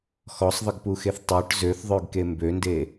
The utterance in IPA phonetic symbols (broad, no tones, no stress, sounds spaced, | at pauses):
x ɔ sˤ ðˤ ə ɡ p u x e θ tˤ œ ʈ z ø θ ðˤ œ ɡ k e m b ø n d e